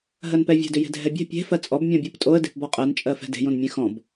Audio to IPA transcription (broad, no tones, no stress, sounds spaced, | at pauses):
ɦ ɜ n p ɛ vʲ ɛ̤ d ʏ j e̤ dʱ ɛ bʲ ɛ̤ pʲ e̤ f ɜ t͡sʼ ɔ b mʲ ɔ̃ bʲ ɜ p tʼ o ə̯ d e̤ p b ɔ qʼ ɜ n t͡ʃʼ ɜ f ɛ̤ d e̤ j õ n mʲ ẽ x ɔ̃ b